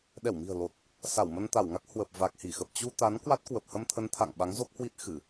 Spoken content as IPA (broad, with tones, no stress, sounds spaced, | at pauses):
ɗ ɛ˧˩ w m i̤˨˩ ə̯ l o˨˩ t̚ | s a˧˩ w m ə˧ n t̪ a˧˩ w ŋ a˦˥ k̚ h w ə˨˩ p̚ v a˨˩ k̚ h i˧˩ x ə˨˩ p̚ t͡ɕ u˧ t̪ a˨˦ n k w a˦˥ t̚ k w ə˨˩ p̚ h ə˧ m t̪ʰ ə˨˦ n t̪ʰ a̰˧˨ ŋ ɓ a˨˦ ŋ z o˦˥ k̚ h w i˦˥ t̚ x ɨ˧˩˨